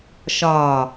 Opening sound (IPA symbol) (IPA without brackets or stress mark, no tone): ʃ